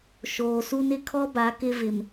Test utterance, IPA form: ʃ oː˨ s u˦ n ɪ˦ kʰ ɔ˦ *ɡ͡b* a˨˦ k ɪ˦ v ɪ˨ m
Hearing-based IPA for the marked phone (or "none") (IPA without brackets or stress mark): b